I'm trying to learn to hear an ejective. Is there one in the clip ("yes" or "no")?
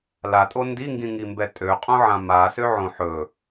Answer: yes